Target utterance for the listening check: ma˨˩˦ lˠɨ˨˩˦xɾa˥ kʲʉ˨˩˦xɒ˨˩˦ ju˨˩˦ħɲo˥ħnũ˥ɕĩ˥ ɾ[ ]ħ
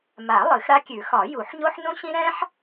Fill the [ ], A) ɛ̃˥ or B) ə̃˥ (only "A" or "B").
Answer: A